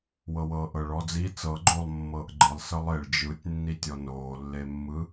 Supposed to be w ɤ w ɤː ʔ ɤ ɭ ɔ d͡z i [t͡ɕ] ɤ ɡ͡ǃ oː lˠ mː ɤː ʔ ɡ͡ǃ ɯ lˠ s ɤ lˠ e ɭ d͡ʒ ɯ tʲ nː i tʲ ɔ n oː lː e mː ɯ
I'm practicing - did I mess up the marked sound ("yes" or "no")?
yes